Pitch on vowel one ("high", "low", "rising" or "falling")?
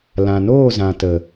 low